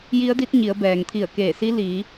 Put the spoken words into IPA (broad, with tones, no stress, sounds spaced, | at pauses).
j i˧˥ ə̯ d i˧˥ t̚ ɲ i˩˧ ə̯ b ɛː˩ ŋ t̪ʰ i˧˩ ə̯ k eː˧˩ s i˧˥ l iː˩˧